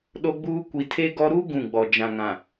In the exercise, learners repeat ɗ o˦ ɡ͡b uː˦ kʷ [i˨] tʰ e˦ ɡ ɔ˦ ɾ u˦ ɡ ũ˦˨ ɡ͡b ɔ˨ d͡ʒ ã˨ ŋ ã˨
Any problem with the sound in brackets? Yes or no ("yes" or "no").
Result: no